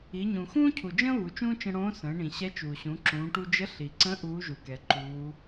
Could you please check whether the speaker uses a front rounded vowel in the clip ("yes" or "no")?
no